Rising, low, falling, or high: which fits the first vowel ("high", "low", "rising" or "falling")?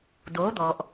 rising